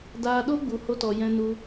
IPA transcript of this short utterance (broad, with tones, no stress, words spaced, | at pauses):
daː˧ɗo˦ ɡ͡bu˧ho˦tɔ˧ jɛ̃˧nu˧